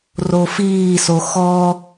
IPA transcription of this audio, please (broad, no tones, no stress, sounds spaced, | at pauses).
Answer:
r o f iː s o x ɔ